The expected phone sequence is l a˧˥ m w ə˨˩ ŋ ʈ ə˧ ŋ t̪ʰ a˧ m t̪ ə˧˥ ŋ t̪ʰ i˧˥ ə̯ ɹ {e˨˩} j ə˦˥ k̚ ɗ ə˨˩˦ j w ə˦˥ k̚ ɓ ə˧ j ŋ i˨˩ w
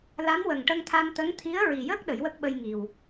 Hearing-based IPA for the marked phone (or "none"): i˨˩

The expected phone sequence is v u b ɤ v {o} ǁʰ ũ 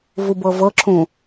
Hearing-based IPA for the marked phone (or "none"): ɤ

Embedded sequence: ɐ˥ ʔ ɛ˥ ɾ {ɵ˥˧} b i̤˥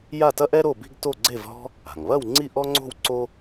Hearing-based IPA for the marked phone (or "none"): o˥˧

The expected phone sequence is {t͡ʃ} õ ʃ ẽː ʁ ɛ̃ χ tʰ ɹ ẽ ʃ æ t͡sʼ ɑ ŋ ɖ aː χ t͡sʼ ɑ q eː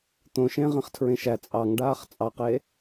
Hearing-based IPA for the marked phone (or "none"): t̪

